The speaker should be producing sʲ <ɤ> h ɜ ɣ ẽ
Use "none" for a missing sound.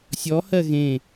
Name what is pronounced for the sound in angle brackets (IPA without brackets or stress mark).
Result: ɔ